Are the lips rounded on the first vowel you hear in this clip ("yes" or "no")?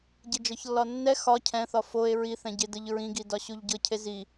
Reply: no